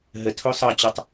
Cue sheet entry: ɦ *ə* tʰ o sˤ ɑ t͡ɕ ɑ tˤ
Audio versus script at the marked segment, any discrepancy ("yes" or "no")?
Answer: no